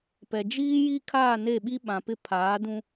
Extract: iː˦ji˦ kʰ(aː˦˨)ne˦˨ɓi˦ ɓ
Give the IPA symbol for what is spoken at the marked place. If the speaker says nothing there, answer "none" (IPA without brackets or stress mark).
aː˦˨